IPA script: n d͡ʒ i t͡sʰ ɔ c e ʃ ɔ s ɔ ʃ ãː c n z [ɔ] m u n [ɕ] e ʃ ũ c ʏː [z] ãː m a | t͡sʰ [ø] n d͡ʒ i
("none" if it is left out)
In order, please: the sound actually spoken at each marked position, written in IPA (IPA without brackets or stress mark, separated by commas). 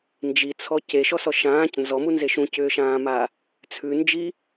ɔ, z, ʃ, ʉ